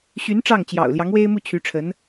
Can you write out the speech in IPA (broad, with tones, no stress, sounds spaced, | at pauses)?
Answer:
ɕ y˧˥ n ʈ͡ʂ ɑ˥˩ ŋ t͡ɕ j ɑ̰˨˩ ʊ̯ l j ɑ˧˥ ŋ w e˥ ɪ̯ m u˥˩ t͡ɕʰ y˧˥ ʈ͡ʂʰ ə˧˥ n